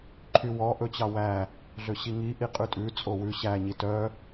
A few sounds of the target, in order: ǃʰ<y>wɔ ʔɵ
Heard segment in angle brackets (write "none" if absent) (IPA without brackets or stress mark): y